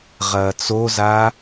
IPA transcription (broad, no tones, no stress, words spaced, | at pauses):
ʁɐːt͡soza